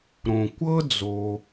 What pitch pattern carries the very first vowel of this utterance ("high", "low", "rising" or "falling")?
low